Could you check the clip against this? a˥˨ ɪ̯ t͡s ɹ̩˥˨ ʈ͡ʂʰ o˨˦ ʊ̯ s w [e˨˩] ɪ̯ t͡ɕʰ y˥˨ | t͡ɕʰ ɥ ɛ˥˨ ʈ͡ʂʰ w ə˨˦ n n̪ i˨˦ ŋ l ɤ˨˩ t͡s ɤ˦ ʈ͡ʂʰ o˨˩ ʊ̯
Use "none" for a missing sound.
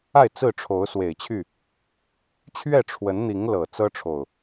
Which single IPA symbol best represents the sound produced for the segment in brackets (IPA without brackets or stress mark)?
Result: e˨˩